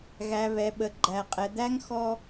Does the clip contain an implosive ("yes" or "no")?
yes